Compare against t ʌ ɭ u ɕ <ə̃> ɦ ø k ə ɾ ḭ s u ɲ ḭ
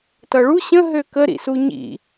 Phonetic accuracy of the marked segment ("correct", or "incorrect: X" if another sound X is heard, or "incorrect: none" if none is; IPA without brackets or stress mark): correct